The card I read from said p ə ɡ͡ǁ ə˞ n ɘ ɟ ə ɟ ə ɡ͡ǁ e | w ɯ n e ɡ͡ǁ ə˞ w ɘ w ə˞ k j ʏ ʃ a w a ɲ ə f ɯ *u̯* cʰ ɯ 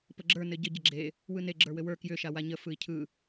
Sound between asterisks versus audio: incorrect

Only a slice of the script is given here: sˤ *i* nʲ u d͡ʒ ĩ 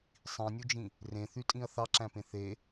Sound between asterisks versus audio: incorrect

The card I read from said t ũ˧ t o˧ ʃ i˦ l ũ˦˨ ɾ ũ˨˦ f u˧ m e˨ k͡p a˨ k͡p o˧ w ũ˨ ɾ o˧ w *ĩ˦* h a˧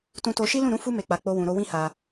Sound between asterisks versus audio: correct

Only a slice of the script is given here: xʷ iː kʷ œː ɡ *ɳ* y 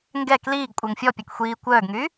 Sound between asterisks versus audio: incorrect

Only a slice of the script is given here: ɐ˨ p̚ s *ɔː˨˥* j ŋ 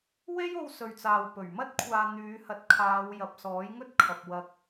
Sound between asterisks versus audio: correct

